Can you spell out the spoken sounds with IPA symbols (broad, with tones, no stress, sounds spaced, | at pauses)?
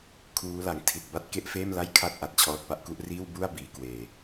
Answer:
kʰ uː˦˥ l a˨˩ ŋ tʰ i˨˩ t̚ b a˥˩ t̚ k e˥˩ ʔ f eː˥˩ m l a˥˩ j kʰ a˥˩ t̚ ʔ a˨˩ t̚ t͡ɕʰ ɔː˦˥ t̚ p a˥˩ ʔ k u˦˥ ʔ r iː˥˩ w b u˥˩ a̯ b iː˩˦ k w eː˨˩